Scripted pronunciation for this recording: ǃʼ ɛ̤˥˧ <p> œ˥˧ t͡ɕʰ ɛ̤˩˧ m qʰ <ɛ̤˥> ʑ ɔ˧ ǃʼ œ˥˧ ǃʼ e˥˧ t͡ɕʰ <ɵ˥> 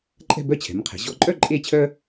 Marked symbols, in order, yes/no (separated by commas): no, no, no